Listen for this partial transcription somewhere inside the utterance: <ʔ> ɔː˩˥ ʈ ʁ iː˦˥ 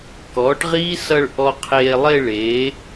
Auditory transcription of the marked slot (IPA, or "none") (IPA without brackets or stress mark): k